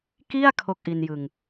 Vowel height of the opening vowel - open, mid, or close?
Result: close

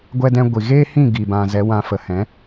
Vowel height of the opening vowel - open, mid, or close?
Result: mid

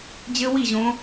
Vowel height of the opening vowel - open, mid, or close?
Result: mid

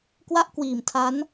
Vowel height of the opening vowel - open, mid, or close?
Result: open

